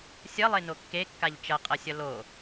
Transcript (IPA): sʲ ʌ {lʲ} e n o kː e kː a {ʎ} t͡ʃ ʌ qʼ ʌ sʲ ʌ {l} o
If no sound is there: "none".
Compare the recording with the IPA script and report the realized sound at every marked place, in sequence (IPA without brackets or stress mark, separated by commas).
lˠ, ʎ, l